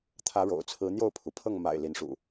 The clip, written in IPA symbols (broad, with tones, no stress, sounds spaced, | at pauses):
t̪ʰ ä˨˦ ɻ o̰˨˩ ʊ̯ t͡sʰ ɹ̩˨˦ n̪ j o˥˨ ʊ̯ pʰ u˩ pʰ ɤ˥˨ ŋ m a̰˨˩ ɪ̯ l i˨˦ n ʂ ṵ˨˩